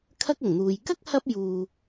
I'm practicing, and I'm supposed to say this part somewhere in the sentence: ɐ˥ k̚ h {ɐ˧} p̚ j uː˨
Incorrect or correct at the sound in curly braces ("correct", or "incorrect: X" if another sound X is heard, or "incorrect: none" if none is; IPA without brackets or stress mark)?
correct